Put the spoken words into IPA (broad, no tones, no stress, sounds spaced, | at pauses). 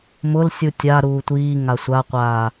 m ʊ l sʲ u tʲ a ɾ uː tʷ iː ŋ a sʷ a qʷ aː